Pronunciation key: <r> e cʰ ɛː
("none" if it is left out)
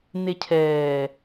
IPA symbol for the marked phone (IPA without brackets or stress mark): n̪